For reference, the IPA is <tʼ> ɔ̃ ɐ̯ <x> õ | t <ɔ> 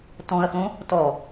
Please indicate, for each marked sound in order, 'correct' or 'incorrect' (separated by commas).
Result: incorrect, correct, correct